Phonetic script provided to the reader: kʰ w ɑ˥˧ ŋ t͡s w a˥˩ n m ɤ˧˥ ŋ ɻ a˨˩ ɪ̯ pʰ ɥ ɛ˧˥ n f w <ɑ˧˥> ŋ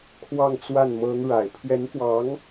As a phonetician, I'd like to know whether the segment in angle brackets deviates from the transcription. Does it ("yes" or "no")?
no